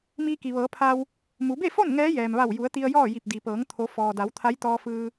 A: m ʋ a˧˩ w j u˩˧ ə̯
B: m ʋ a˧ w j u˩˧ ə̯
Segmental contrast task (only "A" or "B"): A